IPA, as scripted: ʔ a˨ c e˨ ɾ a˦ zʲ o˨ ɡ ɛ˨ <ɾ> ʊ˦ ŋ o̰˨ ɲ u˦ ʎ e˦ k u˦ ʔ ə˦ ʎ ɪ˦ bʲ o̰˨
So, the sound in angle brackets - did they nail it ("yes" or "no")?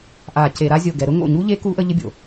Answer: yes